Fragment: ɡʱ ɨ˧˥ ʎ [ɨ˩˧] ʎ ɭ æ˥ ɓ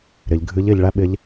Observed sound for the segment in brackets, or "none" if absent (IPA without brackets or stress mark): ɪ˩˧